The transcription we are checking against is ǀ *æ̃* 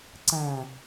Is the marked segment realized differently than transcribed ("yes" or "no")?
no